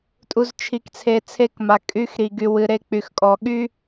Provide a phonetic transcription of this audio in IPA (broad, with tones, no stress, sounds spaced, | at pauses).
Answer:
tʼ u˨ z t͡ʃʰ i˨ k t͡sʰ e˨ t͡sʰ e˦˨ k m a˨ kʼ y˨˦ x ɾ i˨ ɡ y˨ w ɨ˨ ɾ e˦˨ k͡p y˨ x kʼ ɔ˨ ɠ y˦